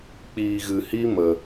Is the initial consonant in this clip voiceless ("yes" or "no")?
yes